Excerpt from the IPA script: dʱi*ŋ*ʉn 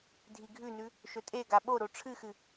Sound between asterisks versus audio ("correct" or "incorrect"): incorrect